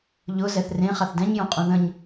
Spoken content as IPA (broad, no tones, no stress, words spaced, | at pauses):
ʎʊ zɛθrẽ χaθdɛ̃ɲjõ qʼũðə̃ɲ